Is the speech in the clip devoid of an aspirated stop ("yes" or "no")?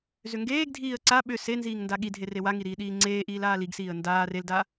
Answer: yes